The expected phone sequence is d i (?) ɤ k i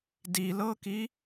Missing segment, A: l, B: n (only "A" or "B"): A